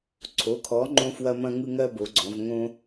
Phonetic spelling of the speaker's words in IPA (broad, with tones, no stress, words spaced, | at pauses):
ǀʰo˩˧kʰɔ˩˧ ŋ͡ǃõ˦fwɐ˦mɐ̃˦ŋɯ˦ ŋɜ˦bo˩˧ɡ͡ǀɔ̃˩˧v ŋõ˦